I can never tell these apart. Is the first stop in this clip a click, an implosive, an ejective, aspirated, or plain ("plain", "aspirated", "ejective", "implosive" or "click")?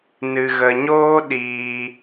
implosive